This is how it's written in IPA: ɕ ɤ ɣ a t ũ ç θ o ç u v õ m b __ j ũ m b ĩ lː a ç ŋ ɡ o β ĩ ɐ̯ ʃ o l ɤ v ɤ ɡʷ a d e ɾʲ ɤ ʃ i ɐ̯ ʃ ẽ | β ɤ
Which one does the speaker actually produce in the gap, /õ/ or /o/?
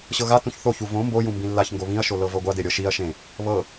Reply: o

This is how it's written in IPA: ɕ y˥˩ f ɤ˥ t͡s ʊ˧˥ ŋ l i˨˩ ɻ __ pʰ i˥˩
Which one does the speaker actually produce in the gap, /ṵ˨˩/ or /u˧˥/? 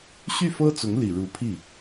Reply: u˧˥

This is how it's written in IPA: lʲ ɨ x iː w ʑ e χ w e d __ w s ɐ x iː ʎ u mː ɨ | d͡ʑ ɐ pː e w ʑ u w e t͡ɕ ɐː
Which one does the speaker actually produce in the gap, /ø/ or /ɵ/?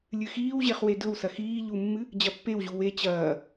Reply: ɵ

